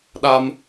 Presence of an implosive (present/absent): present